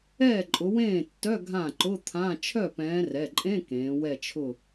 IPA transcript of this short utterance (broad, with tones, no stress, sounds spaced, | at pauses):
ɛː˥˩ ǃʼ ʊ˨˦ w ẽː˥˩ tː œ˧˥˧ ɡʱ ã˥˩ ǃ ʊ˧˥˧ t̪ʰ ã˧˥˧ t͡ʃʰ œ˥˩ p ɛ̃ː˨˦ r ɛ˩˧˩ ǃʼ ẽ˧˥˧ k ẽː˨˦ w ɛ˥˧ t͡ʃʰ ʊ˥˧